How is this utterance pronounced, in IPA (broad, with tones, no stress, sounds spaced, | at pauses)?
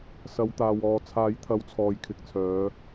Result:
s ɐ˨˧ w t̪ aː˨ w ɔː˨ t͡sʰ aː˨˥ j t̪ʰ ɐ˨˧ w t͡sʰ ɔː˨ j kʰ ɪ˨ k̚ t͡sʰ œː˨˧